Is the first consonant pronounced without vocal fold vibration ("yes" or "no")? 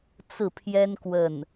yes